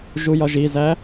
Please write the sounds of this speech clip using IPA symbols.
ʒujɒʒizæ

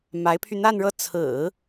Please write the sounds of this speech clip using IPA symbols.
ma˧˥ɪ̯pʰy˧n̪a˥˧nɻɤ˥˩ t͡sʰɹ̩˨˩˦

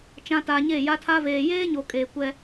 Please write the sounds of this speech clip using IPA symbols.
t͡ʃã˨ taː˨ɲe˦˨ja˦tʰa˦ veː˨jeː˦ɲo˨ kʼeː˨kʷɛ˦

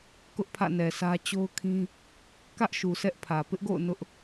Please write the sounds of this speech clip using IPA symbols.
kʊ˦ʔpʰä̰˦˨nɛ˨sä˦ t͡ɕo˦ʊ̯kʰĩ˦ | kä˦ʔʃu˨ sɛ˦ʔpʰä˨ pɪ˦ʔɡo̰˦˨ʊ̯ nʊ˦ʔ

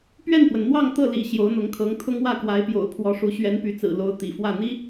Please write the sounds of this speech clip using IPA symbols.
pɥɛ˥˩npwə˩nn̪wɑ˥˧ŋ t̪ɤ˥˩lḭ˨˩ ɕjo˧˥ʊ̯n̪ʊ˧˥ŋkʰɤ˧˥ŋ t̪ʰʊ˥ŋwä˥˩ kwa˧˥ɪ̯pjo̰˨˩ʊ̯ pʰwɔ˧˥ʂu˧˥ ɕɥɛ˧˥npy˧˥t͡sɹ̩˨˩lo˧˥ʊ̯ t̪ḭ˨˩fwä˥˩ n̪i˥

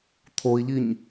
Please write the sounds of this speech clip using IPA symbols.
t̪ʰoi̯ʎiɲ

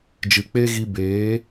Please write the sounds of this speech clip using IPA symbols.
d͡ʒɨ˨k͡pe˦ɣi˧ beː˨˦

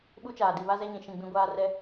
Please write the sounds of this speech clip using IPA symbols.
ɓu˦t͡ʃaː˨ di˨βa˦zɛ˦ ɲĩ˨ʃĩ˦˨ɡ͡bĩ˦ɡʷaː˦ rɛ˦

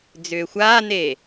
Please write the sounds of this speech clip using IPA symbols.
d͡zʏːxʷaːne

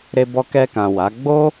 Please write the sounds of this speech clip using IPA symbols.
ɾe˧bɔ˧kɛ˧kã˨ wa˨˦ ɡ͡bo˦

